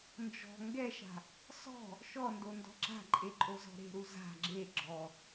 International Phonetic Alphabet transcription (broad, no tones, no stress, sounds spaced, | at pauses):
n d͡ʒ ɔ̤ ŋ ɡ ɛ ʃ a̤ | s ɔ̤ | ʃ ɔ n d o n d ɔ̤ ǁ a̤ ǃʼ e ǃʼ o z ɔ̤ ɾ e̤ ɾ u z a̤ ɡ͡ǁ e ɡ͡ǁ ɔ